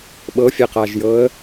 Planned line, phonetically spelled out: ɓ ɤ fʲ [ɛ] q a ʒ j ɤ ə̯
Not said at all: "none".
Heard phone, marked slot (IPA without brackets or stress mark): ɛ